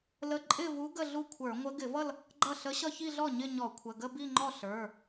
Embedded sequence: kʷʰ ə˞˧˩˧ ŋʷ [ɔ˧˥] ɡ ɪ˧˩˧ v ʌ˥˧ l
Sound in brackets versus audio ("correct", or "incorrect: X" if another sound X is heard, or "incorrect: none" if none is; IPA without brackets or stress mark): incorrect: ə˧˥